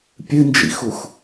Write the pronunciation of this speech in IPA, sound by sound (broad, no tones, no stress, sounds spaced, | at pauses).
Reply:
pʲ ɨ n d͡ʒ ḭ x u x